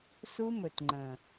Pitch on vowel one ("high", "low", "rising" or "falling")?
high